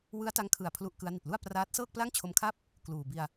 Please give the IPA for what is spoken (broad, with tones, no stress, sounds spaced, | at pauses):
w ɯ˦˥ a̯ t a˦˥ ŋ kʰ ɯ˨˩ a̯ pʰ l u˦˥ ʔ k ɯ˦˥ a̯ n i˨˩ t̚ l u˥˩ a̯ p r aː˦˥ t̚ s ɤː˥˩ k̚ p l a˥˩ ŋ t͡ɕʰ o˦˥ m kʰ a˥˩ p̚ | k l uː˨˩ b i˧ a̯